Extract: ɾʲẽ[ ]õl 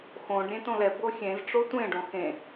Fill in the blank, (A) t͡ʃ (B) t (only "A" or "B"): B